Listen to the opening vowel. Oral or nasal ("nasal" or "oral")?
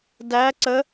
oral